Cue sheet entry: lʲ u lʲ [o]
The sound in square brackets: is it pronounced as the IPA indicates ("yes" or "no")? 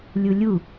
no